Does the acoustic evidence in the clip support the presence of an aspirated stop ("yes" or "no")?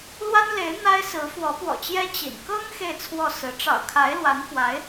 yes